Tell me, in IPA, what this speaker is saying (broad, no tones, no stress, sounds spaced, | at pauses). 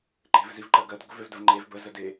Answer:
ǃ e̤ v z i v ǃ ɜ ɡ ɜ d ɡ ʊ v ø v d ə v ŋ͡ǃ e v b ə z ə d e